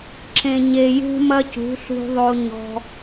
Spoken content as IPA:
ǁ ẽ˨ ɲ e˨ j ṳ˦ m ɐ˦ c ṳ˨˦ ɬ ṳ˧ ðˤ o˧ ɲ ɔ̤˧

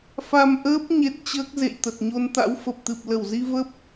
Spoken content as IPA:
f a˧ m ʔ əː˦˥ p̚ ɲ e˦˥ t̚ t͡ɕ əː˦˥ k̚ z ḛ˧˨ j t̪ ə˨˩ t̚ ɲ o˧ n t̪ a̰˧˥ w f ə˨˩ p̚ t̪ ɨ˨˩ p̚ l ə˧˩ w z i˧ v ə˦˥ p̚

